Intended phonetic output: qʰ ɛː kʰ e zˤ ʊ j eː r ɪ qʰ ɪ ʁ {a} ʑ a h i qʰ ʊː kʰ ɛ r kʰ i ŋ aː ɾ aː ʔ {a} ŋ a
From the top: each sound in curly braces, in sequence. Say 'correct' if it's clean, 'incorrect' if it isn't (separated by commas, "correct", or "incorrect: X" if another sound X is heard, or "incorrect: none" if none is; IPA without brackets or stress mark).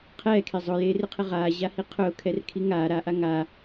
incorrect: aː, correct